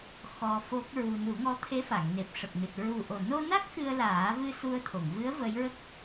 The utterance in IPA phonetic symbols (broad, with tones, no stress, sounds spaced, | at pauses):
x ɔ˧ f o˦˥ k̚ ɹ u˧ n u˨˩˦ ŋ ɔ˧˥ t̪ʰ e˧˥ f a˨˩˨ ŋ n e˨˩ p̚ ʂ ə˨˩ k̚ n ɨ˨˩ t̚ ɹ u˨˩ ʔ o˨˩ n o˧ n a˦˥ k̚ x ɨ˧ ə̯ l aː˨˩˦ v ɨ˧ s u˧ ə̯ t̪ʰ o˨˩˨ ŋ v ɨ˧˥ ə̯ v ə˧˥ j ɹ ə˦˥ k̚